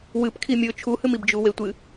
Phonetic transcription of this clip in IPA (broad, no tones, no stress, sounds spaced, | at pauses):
w ɨ p kʰ i mʲ ɵ t͡ʃʰ u h ɨ m i b d͡ʒ u w e tʷ ɨ